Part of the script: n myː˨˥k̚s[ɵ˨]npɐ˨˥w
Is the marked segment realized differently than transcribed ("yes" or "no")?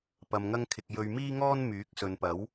no